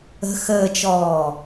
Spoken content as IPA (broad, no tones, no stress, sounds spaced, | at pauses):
ə̤ x əː t͡ʃ ɔː